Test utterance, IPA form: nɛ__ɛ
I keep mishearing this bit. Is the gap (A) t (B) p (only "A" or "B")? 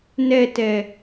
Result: A